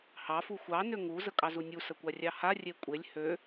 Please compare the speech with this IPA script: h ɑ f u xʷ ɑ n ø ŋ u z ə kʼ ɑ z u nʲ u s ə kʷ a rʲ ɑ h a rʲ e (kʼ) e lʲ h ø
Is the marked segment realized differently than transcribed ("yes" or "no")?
yes